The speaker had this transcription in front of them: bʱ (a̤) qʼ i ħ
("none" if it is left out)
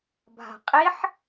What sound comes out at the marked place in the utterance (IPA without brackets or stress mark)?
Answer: a̤